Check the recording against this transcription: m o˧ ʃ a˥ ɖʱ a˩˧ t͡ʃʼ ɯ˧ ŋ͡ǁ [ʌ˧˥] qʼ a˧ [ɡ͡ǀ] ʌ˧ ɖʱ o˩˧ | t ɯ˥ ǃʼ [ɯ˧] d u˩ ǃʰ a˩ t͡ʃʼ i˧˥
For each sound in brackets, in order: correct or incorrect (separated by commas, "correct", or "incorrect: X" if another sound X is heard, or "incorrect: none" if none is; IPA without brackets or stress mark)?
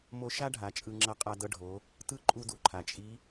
correct, incorrect: d, incorrect: u˧